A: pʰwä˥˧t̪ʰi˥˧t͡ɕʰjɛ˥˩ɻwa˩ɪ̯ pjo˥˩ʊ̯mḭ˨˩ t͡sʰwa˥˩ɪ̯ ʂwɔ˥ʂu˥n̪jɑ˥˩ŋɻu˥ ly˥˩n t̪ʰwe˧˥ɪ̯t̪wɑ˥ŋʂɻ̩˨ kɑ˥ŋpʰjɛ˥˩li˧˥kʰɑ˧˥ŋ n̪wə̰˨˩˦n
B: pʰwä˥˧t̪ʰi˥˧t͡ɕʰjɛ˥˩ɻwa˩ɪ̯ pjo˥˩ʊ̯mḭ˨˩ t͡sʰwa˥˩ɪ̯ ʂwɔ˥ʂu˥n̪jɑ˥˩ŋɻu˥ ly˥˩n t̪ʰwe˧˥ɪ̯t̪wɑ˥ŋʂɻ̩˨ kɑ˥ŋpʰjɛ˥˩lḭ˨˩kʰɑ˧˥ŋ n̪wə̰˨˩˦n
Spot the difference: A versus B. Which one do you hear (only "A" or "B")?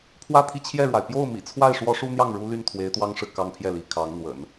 A